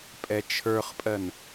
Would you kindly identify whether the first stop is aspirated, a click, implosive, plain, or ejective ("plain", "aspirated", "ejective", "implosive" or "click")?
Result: ejective